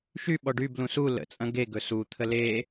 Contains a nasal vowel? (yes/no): yes